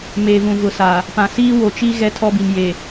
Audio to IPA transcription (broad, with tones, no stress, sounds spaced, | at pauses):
m eː˨ v ũ˨ v ʊ˨ s a˨ | p ã˨ s iː˦ w o˨ t͡ʃ i˦ ɣ ɛ˦ tʰ ɔ˦ b i˨ m j e˨